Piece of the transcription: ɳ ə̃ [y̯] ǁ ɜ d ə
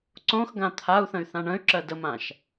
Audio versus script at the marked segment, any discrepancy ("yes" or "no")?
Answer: no